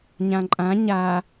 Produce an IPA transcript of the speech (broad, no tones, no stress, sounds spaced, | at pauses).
ɲ ã ǃʼ ã ɲ a